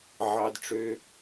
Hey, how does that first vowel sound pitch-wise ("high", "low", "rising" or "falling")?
high